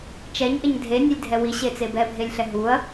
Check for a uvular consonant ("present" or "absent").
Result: absent